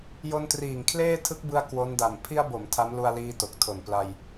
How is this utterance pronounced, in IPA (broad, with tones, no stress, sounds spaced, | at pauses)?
j o˧ n t r iː˨˩ ŋ kʰ l eː˥˩ tʰ ɯ˦˥ k̚ b ɯ˧ a̯ k w o˦˥ n d a˨˩ m pʰ i˧ a̯ b o˩˦ m tʰ a˦˥ m l u˧ a̯ l iː˧ t o˨˩ k̚ tʰ o˨˩ n p l a˧ j